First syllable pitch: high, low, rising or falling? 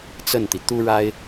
falling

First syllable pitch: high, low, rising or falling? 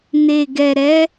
low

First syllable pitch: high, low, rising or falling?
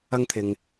high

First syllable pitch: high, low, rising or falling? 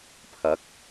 rising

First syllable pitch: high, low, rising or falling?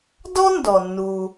high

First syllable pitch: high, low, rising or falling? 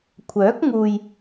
rising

